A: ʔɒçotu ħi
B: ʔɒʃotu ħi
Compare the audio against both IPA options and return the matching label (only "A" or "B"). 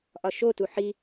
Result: B